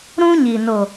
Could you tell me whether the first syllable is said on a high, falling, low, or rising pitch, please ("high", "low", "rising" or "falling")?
high